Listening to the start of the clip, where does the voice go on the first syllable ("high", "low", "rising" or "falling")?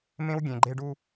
high